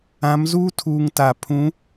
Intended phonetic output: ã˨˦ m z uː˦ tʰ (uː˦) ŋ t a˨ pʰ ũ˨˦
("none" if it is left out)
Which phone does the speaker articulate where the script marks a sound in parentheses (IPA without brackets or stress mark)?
uː˨